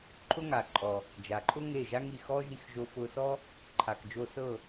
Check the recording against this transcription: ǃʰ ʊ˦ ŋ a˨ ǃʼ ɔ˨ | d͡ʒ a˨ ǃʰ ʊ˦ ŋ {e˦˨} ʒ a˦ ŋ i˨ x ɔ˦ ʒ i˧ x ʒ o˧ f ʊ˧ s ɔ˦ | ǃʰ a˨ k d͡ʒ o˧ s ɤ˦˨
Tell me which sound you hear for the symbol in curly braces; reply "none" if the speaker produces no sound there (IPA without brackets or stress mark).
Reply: e˦˨